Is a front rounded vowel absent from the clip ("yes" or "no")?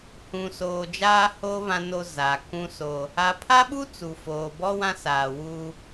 yes